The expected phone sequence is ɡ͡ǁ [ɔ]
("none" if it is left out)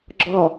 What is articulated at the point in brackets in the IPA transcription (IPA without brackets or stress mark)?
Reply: ɔ